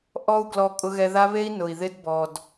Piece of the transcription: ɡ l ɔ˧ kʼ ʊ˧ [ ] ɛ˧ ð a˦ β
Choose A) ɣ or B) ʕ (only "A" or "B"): A